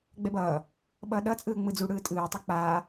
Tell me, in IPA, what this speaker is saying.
ɡ͡b ɛ b ʌː | ɓ ʌː ɗ ʌː t͡sʼ ɯː ŋ͡m ɯ d͡z u ɽ ɯː tʼ ɯː tˤ u k͡p aː

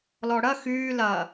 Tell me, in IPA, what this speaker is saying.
l ɔ ɽ ɐ x yː l ɐ

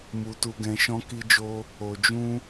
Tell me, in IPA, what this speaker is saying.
m u˧ t u˧ ɡ ɛ̃˧ ʃ ɔ̃˦ k i˦ d͡ʒ o˦ | o˧ d͡ʒ ũ˦

